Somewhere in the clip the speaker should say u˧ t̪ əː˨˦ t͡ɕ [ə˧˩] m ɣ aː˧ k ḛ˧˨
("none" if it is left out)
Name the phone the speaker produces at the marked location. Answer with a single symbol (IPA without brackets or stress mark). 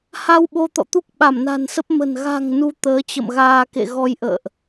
ə̰˧˨